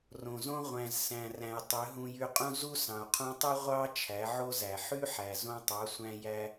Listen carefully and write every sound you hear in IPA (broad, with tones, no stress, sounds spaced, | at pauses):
r õ˨ z õ˦ ʁʷ æ̃˨ z s æ̃˨ r æ̃˨ j tˤ ø˨˦ ɦ ũ˧ j y˧ qʼ ũ˦ z u˦ s ɑ̃˨ u̯ qʰ ũ˧ tˤ y˦ ʁʷ ɑ˦ t͡ʃʰ æ˨˦ ʕ o˦ z æ˨ ħ y˦ ħ æ˨ z õ˧ tˤ ɑ˨˦ sʷ æ̃˦ j æ˧